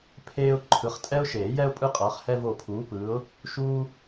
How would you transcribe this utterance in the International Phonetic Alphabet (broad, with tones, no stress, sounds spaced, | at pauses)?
pʰ eː˥ ʊ̯ ǃʰ ɯ˨˥ χ tʼ ɛ˥ ʊ̯ ʃ eː˨˩˦ j ɛ˥ ʊ̯ pʼ ɯ˥ qʼ ʌː˨˥ χ h ɛ˥ v o˦˨ pʰ uː˨˥ p ɯː˨˥ ʊ̯ | ʃ uː˥